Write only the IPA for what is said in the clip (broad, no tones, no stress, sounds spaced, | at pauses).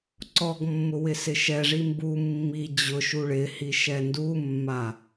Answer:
ǀ ɔ ɡ mː ʊ w ɪ s ɪ ʃ ɛ ʐ i m b u mː i d͡ʑ ʊ ʃ u ɭ ɪ h i ʃ ɛ n d u mː a